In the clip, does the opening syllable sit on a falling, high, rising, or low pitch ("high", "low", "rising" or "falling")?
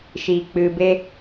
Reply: low